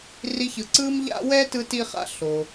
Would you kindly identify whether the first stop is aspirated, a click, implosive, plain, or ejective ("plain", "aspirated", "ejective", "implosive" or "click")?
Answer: click